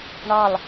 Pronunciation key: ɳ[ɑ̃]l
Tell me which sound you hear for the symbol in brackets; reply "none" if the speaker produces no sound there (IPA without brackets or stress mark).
ɑ